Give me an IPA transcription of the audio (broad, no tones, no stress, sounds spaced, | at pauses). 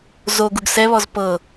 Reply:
z o ɡ u ɡ s ɛ β ɔ z p ɤ